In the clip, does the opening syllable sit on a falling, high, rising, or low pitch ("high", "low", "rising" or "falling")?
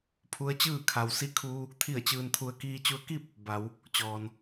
rising